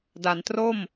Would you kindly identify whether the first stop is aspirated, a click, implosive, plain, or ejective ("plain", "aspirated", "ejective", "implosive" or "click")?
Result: plain